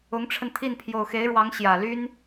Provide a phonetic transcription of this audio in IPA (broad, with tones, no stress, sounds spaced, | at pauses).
ʊ˧˥ ŋ ʈ͡ʂʰ ə˧ n t̪ʰ i˥˩ n pʰ j o˨˩ ʊ̯ x e˧˥ ɪ̯ ɻ w ɑ˧˥ ŋ ɕ j ä˨˩ l y˥ n